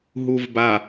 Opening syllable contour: low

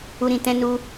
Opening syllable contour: high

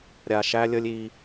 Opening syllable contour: low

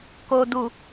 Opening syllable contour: low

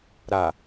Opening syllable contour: low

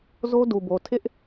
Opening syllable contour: high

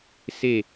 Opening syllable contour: falling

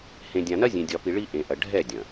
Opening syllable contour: low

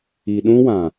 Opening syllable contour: low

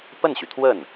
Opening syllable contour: falling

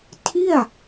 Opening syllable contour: falling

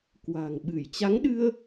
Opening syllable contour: low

